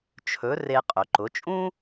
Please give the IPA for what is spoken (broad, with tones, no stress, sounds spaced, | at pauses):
t͡ʃʰ ɵ˩˧ r e˧ qʼ ɵ˩ ǃ ʊ˩˧ t͡ʃʼ ũ˥